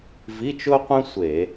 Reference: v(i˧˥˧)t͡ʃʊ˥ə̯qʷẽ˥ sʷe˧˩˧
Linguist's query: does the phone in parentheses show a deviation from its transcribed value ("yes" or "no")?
no